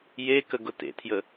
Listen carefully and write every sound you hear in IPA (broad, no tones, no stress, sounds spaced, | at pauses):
j e k ə ɡ ʊ t ḛ tʰ j ə